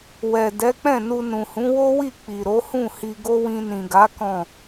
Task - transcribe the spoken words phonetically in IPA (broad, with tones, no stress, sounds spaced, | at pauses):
w ɛ˨ d ɛ˨˦ k͡p ɛ̃˦˨ n u˧ n ũ˨ h ũ˨˦ w o˦ w i˦˨ k͡p i˨ ɾ o˨˦ h ũ˦˨ h i˧ ɡ o˦ w ĩ˧ n ĩ˨ ɡ a˨˦ k ɔ̃˦˨